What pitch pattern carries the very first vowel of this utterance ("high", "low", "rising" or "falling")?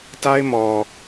high